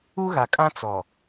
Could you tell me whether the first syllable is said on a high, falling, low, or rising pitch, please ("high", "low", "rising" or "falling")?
high